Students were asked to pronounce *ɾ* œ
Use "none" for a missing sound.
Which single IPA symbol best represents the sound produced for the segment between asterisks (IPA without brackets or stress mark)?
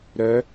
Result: ɾ